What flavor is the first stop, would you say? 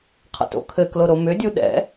aspirated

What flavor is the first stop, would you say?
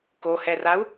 plain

